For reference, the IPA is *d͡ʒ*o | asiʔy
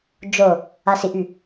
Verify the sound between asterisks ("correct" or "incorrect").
correct